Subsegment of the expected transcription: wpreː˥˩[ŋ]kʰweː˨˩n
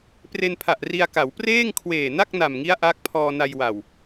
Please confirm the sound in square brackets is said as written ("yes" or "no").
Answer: yes